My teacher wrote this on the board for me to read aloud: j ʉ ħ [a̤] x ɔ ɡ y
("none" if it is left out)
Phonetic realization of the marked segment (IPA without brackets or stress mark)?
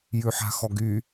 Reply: a̤